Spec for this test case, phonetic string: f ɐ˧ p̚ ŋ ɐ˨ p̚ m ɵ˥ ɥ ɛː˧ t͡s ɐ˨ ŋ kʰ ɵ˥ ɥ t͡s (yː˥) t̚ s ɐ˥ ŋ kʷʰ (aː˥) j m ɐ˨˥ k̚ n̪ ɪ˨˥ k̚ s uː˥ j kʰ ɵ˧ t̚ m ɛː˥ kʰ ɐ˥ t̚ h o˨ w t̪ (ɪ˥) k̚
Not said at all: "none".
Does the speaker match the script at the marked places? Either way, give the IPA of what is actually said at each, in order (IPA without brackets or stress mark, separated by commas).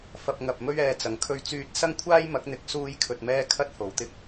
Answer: yː˥, aː˥, ɪ˥